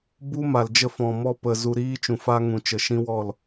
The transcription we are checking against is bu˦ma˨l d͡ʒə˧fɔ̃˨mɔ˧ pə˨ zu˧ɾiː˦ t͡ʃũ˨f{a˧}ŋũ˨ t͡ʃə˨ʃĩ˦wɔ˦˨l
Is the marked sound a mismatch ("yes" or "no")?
no